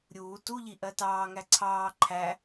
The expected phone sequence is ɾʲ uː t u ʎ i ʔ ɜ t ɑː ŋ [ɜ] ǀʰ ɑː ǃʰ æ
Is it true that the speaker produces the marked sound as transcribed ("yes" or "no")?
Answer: no